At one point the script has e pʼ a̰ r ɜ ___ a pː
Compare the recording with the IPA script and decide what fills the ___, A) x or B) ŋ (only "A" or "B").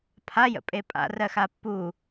A